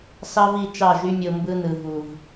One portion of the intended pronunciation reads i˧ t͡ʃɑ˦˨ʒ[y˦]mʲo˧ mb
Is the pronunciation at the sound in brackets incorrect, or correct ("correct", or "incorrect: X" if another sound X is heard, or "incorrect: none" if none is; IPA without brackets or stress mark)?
correct